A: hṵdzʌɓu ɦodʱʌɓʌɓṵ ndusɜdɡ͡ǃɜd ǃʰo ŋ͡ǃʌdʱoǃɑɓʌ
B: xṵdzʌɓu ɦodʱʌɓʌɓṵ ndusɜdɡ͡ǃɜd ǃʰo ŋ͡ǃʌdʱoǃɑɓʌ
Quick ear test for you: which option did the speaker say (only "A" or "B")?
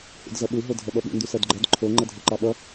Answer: A